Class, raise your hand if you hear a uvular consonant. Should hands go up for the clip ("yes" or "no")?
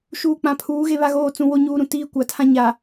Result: no